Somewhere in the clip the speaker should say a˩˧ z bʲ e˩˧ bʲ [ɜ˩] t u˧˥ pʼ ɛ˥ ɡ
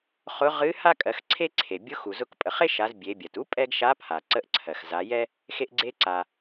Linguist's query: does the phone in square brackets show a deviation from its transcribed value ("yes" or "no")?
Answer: no